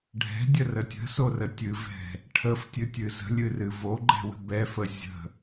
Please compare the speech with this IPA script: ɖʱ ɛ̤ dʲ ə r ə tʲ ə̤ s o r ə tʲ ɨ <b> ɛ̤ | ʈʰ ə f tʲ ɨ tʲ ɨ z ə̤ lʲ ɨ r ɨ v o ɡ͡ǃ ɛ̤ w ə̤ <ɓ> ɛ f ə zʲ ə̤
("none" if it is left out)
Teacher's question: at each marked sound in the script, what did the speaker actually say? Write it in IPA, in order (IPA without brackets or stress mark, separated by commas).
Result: v, b